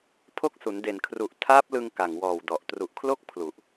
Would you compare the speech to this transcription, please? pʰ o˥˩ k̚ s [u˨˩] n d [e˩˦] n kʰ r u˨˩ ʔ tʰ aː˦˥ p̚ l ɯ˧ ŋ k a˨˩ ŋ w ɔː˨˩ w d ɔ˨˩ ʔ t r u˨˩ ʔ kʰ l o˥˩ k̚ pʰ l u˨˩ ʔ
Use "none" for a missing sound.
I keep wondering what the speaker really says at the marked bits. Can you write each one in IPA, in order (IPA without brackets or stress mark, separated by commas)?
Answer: u˩˦, e˨˩